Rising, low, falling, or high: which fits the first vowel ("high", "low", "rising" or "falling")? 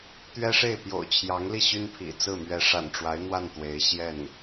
high